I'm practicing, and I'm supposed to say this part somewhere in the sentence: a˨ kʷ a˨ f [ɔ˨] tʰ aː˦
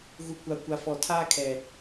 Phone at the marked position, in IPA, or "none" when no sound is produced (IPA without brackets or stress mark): ɔ˨